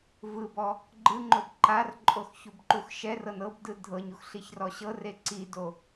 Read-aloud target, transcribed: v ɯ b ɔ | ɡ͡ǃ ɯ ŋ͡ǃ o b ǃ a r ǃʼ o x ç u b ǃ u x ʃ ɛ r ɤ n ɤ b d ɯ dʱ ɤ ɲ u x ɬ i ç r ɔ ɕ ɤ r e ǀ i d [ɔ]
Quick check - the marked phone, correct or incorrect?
incorrect